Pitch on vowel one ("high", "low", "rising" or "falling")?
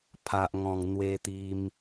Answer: low